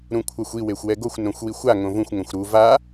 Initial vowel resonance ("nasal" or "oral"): nasal